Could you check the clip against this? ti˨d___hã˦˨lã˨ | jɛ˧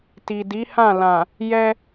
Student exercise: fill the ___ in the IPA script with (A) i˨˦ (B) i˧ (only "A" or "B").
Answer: A